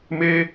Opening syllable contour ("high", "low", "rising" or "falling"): high